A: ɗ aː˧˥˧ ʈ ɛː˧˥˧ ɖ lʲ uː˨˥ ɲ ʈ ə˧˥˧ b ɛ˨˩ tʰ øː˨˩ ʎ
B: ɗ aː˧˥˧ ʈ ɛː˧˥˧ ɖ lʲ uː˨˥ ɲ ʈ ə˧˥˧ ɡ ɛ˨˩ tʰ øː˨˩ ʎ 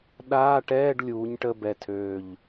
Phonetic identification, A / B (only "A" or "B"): A